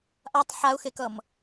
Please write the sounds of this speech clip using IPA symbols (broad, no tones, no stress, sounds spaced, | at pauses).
ʔ a tˤ ħ a ʊ̯ x e k ʌ m